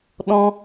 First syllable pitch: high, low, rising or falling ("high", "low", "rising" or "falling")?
high